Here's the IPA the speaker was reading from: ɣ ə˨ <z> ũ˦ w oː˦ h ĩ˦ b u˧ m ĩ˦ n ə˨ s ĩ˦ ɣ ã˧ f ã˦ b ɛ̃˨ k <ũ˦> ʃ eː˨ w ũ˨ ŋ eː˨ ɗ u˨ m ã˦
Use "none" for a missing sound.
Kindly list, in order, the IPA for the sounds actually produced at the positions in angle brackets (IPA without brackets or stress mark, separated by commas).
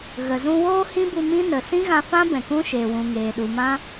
z, ũ˦